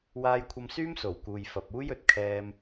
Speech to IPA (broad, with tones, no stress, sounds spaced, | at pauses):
w aː˧ j kʷʰ ɐ˧ m s yː˥ m s o˨˩ w k uː˨ j f ɐ˨ p̚ uː˥ j ɵ˨ t̚ kʰ ɛː˧ m